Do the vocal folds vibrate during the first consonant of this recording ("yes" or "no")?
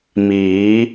yes